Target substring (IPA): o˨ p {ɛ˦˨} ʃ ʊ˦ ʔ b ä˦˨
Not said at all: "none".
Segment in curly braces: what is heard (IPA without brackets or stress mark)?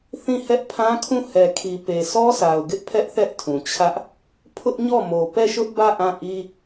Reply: ɛ˦˨